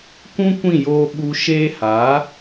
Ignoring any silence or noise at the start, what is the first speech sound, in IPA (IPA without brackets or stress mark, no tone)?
kʷ